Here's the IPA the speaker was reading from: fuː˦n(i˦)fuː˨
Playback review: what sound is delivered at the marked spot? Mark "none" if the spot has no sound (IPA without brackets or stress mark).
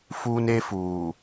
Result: e˦